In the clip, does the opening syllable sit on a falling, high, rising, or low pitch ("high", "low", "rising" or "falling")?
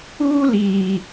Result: high